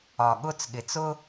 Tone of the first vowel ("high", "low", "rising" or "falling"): low